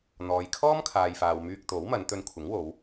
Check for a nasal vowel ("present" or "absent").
absent